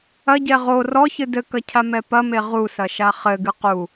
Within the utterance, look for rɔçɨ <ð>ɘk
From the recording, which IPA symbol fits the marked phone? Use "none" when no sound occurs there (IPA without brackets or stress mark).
d